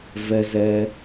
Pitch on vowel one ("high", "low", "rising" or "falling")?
high